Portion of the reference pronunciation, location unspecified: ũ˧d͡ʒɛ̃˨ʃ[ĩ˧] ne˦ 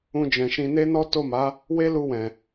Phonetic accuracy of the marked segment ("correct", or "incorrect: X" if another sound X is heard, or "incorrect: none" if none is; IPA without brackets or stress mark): correct